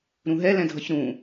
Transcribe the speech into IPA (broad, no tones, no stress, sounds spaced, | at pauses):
ɾ ũ ɦ ɛ l ɛ̃ dʱ ʌ ç ɾ ũ